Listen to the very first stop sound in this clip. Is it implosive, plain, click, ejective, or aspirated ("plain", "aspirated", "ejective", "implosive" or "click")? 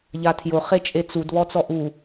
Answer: aspirated